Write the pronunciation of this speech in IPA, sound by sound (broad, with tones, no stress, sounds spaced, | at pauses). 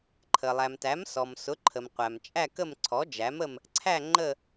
ǃʰ ə˩ lˠ æ˩ m t æ˩˥ m s ɔ˩ m s ʊ˩˥ ǃʰ ə˩ m qʷ æ˩ m t͡ʃʼ æ˦˨ k ə˦˨ m ǀʰ ɔ˩˥ d͡ʒ æ˩˥ m ə˦˨ m | ǀʰ æ˦˨ ŋ͡ǃ ə˦˨